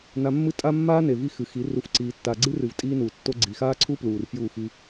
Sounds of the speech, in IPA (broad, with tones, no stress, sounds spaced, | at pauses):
n a˧ mː ɨ˦ tʼ a˦ mː aː˦ n e˨ v i˦ x ɨ˨ x i˨˦ r u˧ f ǀ iː˧ tː a˧ ɡ͡ǀ ɨ˦ r ɨ˨ v tʼ iː˦ n uː˨ tː o˦ ɡ͡ǀ i˨ x aː˦ ǀʰ u˦ p l uː˨ r f j uː˦˨ x i˧